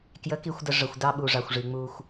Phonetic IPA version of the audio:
k j ə˨˦ k i˨ xʷ d ə˨ ʐ ə˨ xʷ d ɑ˦ ɓ u˨ ʐ ɑ˨ xʷ ʐ i˨ ŋ͡m u˦ xʷ

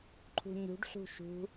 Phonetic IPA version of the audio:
ǃʰ ṳ ɲ ṳ ɖ ɬ ṳ ʃ ṳ

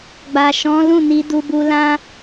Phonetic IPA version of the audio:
ɡ͡b a˨ ʃ ɔ̃˨˦ l ũ˦˨ n i˧ d u˧ b u˧ l ã˦

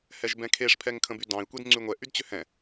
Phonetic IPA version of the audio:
h ɛ ʒ b ɛ̃ kʰ e ʂ pʰ ɛ ŋ kʰ ə̃ b y d ɑ̃ i̯ kʷ e d ŋ͡ǀ y ŋʷ ɛ ʔ y d t͡ɕ ʏ h ɛ̃

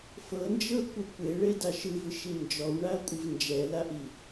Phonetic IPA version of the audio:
f ɤ n d͡ʒ ɤ kʷ ɯ kʷ e ɭ e d a ʃ ɯ v ɯ ʃ i n d͡ʒ ɔ w ɳ a ɐ̯ kʷʼ ɯ v n d͡ʒ ɛ l a ʔ i

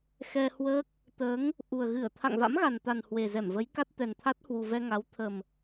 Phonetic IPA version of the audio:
x ɛ˧ h w əː˦˥ k̚ | t̪ əː˨˦ ŋ | ʔ u˨˩ ə̯ ɣ ɨ˧˩ ə̯ t̪ʰ a̰˧˨ ŋ v a̰˧˥ m ɣ a˨˩ n t̪ a˨˩ n h w e˨˩ z ɛ˧˩ m v ə˨˦ j k a˦˥ t̚ t̪ ɛ˨˩ n t̪ʰ a˦˥ t̚ h w u˨˩ v ɛ˧ ŋ a˨˦ w t̪ʰ ə˨˩ m

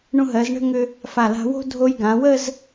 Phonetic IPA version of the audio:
ɳ ũ˧ ɦ ɜ˩˧ z ɳ ə̤˥˧ ŋ ʏ˧ | f a˧˩ l a̤˧ w o̤˥ dʱ o˧ j ɡ ã˩˧ w ə˥˧ z

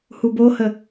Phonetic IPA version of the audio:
h u b o h ə

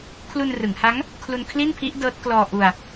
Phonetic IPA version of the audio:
kʰ l u˧ n r ɯ˩˦ ŋ h a˦˥ ŋ | kʰ l u˧ n kʰ l i˥˩ n pʰ i˦˥ ʔ d ɤː˦˥ t̚ k l ɔː˧ ʔ u˧ a̯

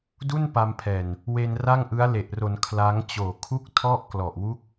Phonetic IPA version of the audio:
d u˥˩ n p a˧ m pʰ ɛː˨˩ n | w e˧ n r a˥˩ ŋ ʔ ɯ˦˥ a̯ l e˨˩ ʔ r o˩˦ n kʰ l a˦˥ ŋ t͡ɕ oː˨˩ kʰ u˥˩ k̚ tʰ ɔ˥˩ ʔ k l ɔ˨˩ ʔ w u˥˩ k̚

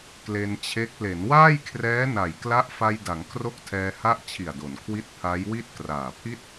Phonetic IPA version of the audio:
k l e˧ n t͡ɕʰ e˦˥ k̚ l e˩˦ n w aː˥˩ j kʰ r ɛː˦˥ n a˨˩ j k l a˦˥ ʔ f a˧ j d a˩˦ ŋ kʰ r o˦˥ k̚ tʰ ɛː˧ h a˦˥ ʔ t͡ɕʰ i˨˩ a̯ d o˩˦ n kʰ w i˦˥ t̚ pʰ a˦˥ j w i˥˩ t̚ k r aː˨˩ pʰ i˥˩ t̚

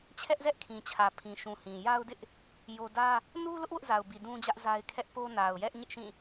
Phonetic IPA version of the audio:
t͡ɕʰ ɛ˦ ʔ z ɛ˦ ʔ kʰ ĩ˨ t͡ɕʰ ä˨ pʰ ĩ˨ ʃ ũ˨ h ĩ˨ j a˦ ʊ̯ d ɪ˦ ʔ | j o˦ d ä˦ | n u˦ l ʊ˦ ʔ w ʊ˦ ʔ z a˨ ʊ̯ b i˨ d ũ˦ d͡ʑ ä˦ ʔ z a˦ ɪ̯ kʰ ɛ˦ ʔ p o˦ n a˨ ʊ̯ j ɛ˦ ʔ ɲ ɪ˦ ʔ ʃ ĩ˦˨

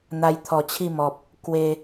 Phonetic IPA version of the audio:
n̪ a˧ j t̪ʰ ɔ˨˩ t͡ɕʰ i˥˧ m ɔ˨ p̚ | k w e˧

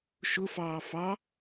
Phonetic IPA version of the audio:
ʃ ʊ f ɑː f ɑ

